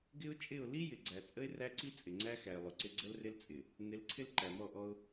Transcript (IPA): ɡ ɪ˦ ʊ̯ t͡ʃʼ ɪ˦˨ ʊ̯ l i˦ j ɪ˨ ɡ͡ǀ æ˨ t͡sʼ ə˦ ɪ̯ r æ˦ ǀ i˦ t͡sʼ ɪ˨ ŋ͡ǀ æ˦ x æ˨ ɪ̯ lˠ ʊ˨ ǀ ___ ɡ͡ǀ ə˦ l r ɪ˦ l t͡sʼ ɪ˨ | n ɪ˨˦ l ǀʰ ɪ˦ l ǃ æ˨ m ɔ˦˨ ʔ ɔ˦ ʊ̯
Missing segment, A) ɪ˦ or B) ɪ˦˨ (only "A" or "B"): A